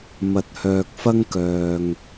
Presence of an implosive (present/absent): absent